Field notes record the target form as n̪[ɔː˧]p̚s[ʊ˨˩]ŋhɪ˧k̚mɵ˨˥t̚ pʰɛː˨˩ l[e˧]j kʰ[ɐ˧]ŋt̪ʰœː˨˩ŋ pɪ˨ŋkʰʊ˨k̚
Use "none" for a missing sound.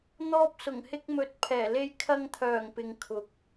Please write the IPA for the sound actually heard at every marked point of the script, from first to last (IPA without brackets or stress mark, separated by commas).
ɔː˧, ʊ˨˩, e˧, ɐ˧